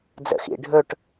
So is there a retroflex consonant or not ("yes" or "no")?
yes